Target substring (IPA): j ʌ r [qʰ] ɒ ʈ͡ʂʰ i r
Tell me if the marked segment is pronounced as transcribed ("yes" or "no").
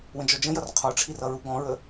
yes